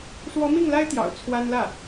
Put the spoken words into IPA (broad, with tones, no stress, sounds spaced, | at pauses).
ʂ w ɔ˧˥ m i˥˩ ŋ l a˥ ɪ̯ t̪ j ɑ̰˨˩ ʊ̯ t͡sʰ w a˥ n l ä˥˩